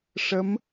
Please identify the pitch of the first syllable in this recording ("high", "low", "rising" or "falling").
rising